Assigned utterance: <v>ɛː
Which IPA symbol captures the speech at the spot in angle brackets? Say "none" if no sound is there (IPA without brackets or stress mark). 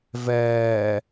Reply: v